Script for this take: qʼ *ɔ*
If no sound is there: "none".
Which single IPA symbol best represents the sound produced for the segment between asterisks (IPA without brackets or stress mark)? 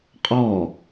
ɔ